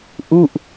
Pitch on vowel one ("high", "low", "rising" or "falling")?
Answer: falling